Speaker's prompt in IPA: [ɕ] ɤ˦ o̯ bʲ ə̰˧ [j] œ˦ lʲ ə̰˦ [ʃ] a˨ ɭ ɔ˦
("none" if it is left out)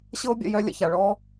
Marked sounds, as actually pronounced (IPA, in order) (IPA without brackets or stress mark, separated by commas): ɕ, j, ç